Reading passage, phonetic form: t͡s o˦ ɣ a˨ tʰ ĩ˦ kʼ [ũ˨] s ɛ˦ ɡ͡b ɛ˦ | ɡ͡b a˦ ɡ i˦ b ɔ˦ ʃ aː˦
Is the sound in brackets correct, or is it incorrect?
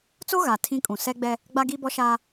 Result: correct